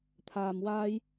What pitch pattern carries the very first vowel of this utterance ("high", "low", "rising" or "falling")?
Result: low